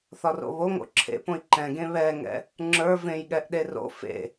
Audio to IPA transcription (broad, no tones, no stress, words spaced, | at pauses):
θɒro̰βo ŋo̰ǁʰḛpõi̯ ǃɛ̃ɡẽ βɛŋɛ̰ | ŋ͡ǁə˞ vẽjɠɛʔ ɗero̰ fḛ